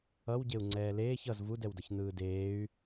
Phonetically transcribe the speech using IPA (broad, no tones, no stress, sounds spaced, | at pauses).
ʌ w ɟ e u̯ ŋ͡ǀ ɛː l eː ç ʌ z v u d ɛ w d ʌ ç n̪ ɯː d eː y̯